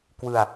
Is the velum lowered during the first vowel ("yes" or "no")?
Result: no